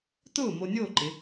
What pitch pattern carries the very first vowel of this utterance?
falling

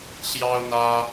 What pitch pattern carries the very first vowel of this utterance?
high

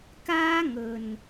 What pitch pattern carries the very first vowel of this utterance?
high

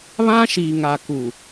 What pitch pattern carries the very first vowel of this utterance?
high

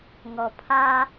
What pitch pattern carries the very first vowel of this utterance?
low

